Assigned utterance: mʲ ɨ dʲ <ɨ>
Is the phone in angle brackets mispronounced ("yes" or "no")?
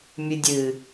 no